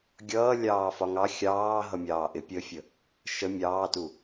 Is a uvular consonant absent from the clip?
yes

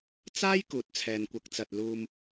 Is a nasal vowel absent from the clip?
yes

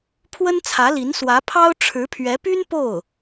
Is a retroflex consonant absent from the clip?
no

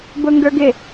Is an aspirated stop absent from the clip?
yes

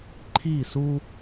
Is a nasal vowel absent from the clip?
yes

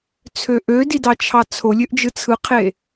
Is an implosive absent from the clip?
yes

